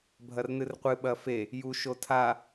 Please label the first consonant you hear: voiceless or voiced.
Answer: voiced